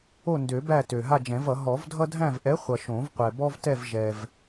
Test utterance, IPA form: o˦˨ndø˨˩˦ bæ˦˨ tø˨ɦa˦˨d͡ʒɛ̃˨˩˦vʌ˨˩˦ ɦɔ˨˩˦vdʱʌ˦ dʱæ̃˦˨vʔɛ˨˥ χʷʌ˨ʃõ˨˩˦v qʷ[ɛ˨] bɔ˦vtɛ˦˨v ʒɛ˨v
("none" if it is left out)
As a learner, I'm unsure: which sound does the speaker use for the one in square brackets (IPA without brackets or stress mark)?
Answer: ɛ˨